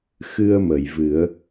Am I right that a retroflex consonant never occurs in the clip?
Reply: yes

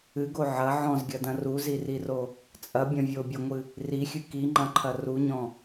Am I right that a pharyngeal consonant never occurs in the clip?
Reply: no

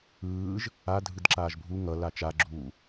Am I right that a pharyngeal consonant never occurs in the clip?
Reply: yes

